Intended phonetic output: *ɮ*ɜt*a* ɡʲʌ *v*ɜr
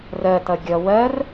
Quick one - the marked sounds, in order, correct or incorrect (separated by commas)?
incorrect, incorrect, incorrect